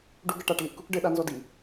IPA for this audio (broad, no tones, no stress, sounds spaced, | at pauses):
ɖ u ɡ ɘ ʈ a ʈ l i ʔ k u k ɖ ɘ ɗ a n z ɔ d i